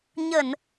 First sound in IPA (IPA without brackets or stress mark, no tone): ɲ